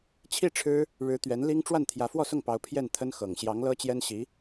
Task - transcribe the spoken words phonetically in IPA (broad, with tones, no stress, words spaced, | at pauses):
t͡ɕʰi˥˩ ʈ͡ʂʰɻ̩˥ | ɻɻ̩˧˥ t̪ɥɛ˧˥nli˥ŋ ʈ͡ʂwa˥˩nt̪ʰjä˧˥ fwɔ˥˧sʊ˥˩ŋpɑ˧˥ʊ̯ pʰjɛ˥˩nt̪ʰə˥nxɤ˨˩ŋ ɕjɑ˧˥ŋ lɤ˥t͡ɕjɛ˥nɕi˧˥